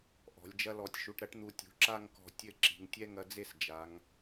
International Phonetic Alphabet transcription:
ʔ ɔ̤˩˧ lʲ d͡ʒ ɐ˥ l ɔ˧˩ tʲ ʃ u˧ ʈ ɾ ɐ˥ ʈ n̪ u˧ tʲ ṳ˩˧ ǁ a˥˧ ŋ k ɔ̤˧˩ tʲ ɘ˥˧ ǁ i̤˩˧ ŋ tʲ ɛ˥ ŋ ɐ˧ d͡z e˥˧ s d͡ʒ a˩˧ ŋ

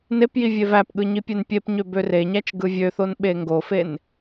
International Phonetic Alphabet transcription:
n e p j i vʲ e v æ p ɠ ɯ ɲ i pʲ e n pʲ e p ɲ ø b ø r e ɲ æ t͡ʃ ɡ ɯ vʲ ø θ o n ɓ e ŋ ɡ o f e n

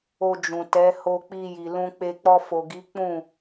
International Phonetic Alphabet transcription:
o˧ d͡ʒ ũ˨ t ɛ˨˦ h o˧ k͡p i˧ j i˨ l ũ˧ k͡p e˧ k͡p ɔ˧ f o˨ ɡ i˨˦ k͡p ũ˦˨

